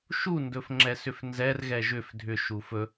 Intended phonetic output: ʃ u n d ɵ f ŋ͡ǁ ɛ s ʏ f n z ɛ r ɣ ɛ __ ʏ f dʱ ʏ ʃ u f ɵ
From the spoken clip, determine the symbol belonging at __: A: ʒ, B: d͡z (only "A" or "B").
A